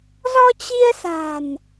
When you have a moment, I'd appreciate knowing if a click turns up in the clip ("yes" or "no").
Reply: no